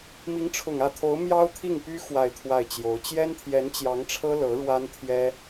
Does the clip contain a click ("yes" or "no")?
no